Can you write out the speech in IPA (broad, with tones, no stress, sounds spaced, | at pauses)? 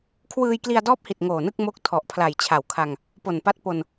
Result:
kʰ w ɯː˧ j k l i˧ a̯ d ɔː˦˥ p̚ h i˨˩ t̚ ŋ oː˨˩ n ɯ˥˩ k̚ m o˦˥ k̚ tʰ ɔ˨˩ ʔ pʰ l a˨˩ j t͡ɕʰ a˨˩ w kʰ a˧ ŋ | p o˨˩ n p a˦˥ t̚ p o˧ n